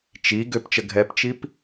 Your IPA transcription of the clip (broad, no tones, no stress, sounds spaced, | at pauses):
t͡ʃ i ɡ ø p t͡ʃ ə ɡʱ ɛ p t͡ʃ i p